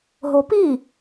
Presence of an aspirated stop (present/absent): absent